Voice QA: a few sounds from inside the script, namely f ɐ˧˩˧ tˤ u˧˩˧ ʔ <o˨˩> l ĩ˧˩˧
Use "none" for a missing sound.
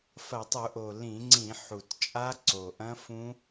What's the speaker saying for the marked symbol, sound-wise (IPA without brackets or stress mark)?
o˨˩